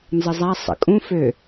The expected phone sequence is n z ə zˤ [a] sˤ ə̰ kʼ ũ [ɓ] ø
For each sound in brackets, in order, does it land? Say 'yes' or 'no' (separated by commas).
yes, no